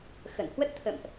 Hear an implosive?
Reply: no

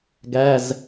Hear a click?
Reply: no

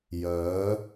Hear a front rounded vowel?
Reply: yes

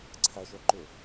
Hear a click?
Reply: yes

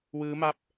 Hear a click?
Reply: no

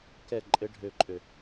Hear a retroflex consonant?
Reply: yes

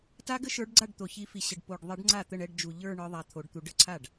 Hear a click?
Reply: yes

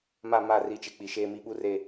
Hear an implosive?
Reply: yes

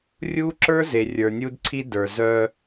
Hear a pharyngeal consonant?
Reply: no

